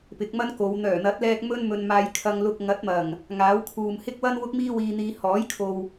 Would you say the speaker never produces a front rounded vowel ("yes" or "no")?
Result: no